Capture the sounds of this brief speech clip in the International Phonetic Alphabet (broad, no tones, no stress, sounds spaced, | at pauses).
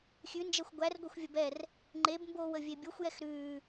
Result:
xʲ ʉ n d͡ʒ ɛ xʷ ɡʷ æ r ɡʷ e xʷ vʲ ə b ɛ r | ŋ͡ǃ e b m b oː w ə vʲ e bʲ o xʷ j ɛ x ɾ ʉː